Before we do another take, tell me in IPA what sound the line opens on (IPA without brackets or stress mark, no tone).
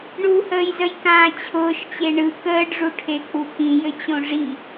ɳ